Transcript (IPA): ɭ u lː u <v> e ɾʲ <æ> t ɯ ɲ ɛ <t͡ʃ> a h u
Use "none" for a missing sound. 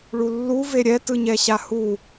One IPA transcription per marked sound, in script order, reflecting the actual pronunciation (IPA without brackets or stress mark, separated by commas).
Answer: v, ɛ, ɕ